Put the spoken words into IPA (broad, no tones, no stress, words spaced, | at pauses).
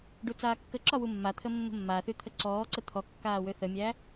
ɖut͡saːkːəǁɒ wumːat̪ʰə mːə̤mːaθy t̪ʰəǀɔːǀə t̪ʰɔ kːaːwøθəmʲæ